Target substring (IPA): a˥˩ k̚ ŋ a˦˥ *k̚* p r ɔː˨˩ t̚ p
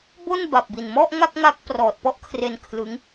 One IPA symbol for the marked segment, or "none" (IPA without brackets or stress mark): k̚